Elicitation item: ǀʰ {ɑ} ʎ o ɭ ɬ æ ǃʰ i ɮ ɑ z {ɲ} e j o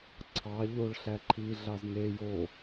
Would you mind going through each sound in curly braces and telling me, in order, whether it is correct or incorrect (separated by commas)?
correct, incorrect